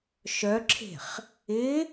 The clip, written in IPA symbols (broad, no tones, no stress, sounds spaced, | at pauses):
ʃ œ ǁʰ e̤ χ | ɪ